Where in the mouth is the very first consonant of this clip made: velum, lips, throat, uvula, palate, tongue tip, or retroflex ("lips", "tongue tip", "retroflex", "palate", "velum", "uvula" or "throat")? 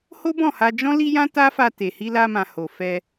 throat